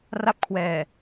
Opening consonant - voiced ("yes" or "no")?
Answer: yes